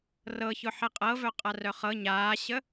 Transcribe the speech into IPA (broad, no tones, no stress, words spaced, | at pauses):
rɤçʊħɛ qʼɤvœ qʼarœχɤ ɲaːɕə